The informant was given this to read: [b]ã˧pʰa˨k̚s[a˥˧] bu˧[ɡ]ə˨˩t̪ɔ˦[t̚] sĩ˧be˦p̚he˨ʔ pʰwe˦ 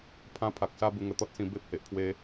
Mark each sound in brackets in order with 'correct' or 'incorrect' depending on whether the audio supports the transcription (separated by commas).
incorrect, incorrect, incorrect, correct